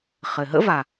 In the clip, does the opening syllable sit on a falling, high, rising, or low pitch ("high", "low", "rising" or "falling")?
low